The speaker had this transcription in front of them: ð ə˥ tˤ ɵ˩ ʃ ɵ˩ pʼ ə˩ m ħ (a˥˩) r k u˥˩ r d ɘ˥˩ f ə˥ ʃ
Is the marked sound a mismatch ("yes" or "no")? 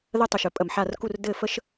no